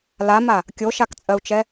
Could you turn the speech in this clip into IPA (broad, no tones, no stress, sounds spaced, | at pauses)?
l a m a | kʲ o ʃ a k t͡sʼ ɜ u̯ t͡ʃ ɛ